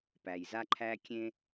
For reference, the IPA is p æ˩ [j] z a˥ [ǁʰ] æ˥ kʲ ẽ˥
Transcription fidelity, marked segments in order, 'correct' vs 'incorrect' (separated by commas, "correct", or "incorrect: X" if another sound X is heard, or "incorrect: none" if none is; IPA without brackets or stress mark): correct, incorrect: ǃʰ